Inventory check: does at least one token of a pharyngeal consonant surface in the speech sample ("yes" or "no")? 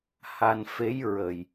no